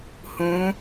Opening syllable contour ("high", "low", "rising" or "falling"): rising